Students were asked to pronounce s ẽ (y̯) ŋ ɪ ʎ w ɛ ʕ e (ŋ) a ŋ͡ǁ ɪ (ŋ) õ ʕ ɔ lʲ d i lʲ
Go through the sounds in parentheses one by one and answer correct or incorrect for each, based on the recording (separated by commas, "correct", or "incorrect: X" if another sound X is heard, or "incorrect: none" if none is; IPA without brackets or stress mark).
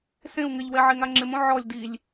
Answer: incorrect: u̯, correct, incorrect: m